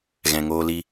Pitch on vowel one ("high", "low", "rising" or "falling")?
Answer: low